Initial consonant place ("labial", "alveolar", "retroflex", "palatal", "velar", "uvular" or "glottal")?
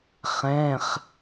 uvular